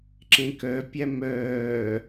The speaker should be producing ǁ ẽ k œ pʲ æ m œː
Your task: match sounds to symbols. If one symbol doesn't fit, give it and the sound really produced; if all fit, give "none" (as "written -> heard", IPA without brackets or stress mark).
none